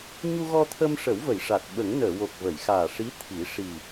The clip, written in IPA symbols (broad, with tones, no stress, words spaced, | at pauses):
ɲu˧ɣɔ˧t̪ʰə˧mʂə˨˩˦w və˨˩˨jʂa˨˩t̚ ɓə˨˩˦ŋnəː˨˩˨wo˨˩k̚ və˨˩˨jxaː˨˩ ʂi˧˥t̪ʰi˨˩˦ ʂi˨˩